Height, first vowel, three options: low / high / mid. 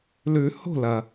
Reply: high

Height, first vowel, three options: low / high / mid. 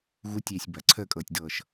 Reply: high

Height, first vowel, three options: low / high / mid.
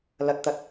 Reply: low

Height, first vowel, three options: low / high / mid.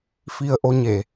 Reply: high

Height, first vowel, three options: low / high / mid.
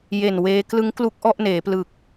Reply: mid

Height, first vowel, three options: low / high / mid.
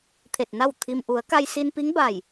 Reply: mid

